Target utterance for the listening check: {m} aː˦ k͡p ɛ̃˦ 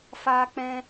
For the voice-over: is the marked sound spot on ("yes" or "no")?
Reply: no